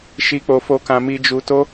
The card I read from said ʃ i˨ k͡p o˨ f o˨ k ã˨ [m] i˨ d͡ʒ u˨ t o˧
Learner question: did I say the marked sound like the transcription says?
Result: yes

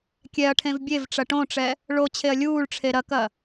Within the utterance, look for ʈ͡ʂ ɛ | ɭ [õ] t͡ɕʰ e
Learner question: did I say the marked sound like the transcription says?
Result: no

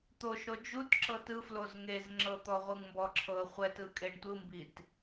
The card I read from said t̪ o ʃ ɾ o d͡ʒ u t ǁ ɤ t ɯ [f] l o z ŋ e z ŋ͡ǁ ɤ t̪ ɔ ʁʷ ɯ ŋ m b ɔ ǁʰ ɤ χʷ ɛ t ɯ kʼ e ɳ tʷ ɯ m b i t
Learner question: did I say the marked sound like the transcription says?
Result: yes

